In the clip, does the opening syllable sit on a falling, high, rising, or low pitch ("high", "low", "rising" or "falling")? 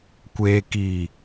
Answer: low